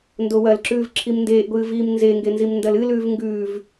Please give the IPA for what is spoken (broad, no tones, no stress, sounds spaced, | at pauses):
n d o w ɐ l ǁ ʉː v ǁʰ i m n d eː ʔ ɡʷ ɨː v iː m n z e ŋ ɡ e n z i m n d ɐ l ɨ l ʉː v ŋ ɡ ʉː v